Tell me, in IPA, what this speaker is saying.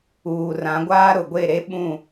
uː˨rã˨˦ɡʷaː˦ ɾʊ˨ɡʷe˦˨ɾe˦ɓũ˦˨

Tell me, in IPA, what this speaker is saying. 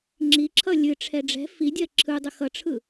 ŋ͡ǁiǁʰʌ lʲɨʈ͡ʂʰɛ ɖ͡ʐɛ̤ fidʲɜ ǁʰɯdˤə xʌʈ͡ʂʰɯ

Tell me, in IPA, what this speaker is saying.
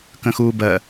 kə̃xuːbɜ

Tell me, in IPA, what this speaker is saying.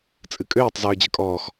t͡sʼɨkʼøːtˤ zøːd͡ʑəkʼɔːx

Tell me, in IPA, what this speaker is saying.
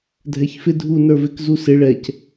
dʱɛçfɪ dʱu nə˞vɪk zusɪ ɭɛc

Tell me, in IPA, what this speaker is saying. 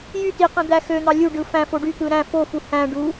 jy tiqẽ d̪æxøn̪ɑ lʲu ɖɯfæ̃fo ɖyt̪ɯ ɾæ̃ fofu hæ̃ ɖu

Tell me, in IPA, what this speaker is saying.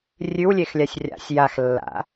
rʲʉwlʲexlʲasʲ rʲa̰sʲ jaxlːa̰

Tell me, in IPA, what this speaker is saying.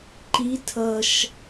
ǃi tʰʌʃ

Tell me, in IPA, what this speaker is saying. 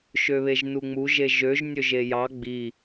ʃøβeʒnuŋ͡mu ʒeʒøʒ nʲøʒejɑ ɡ͡bi

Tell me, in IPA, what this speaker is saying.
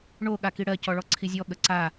ɳo ɠakiɽɜ cɔɭɔǀʰizʲɔ ɠəǀa

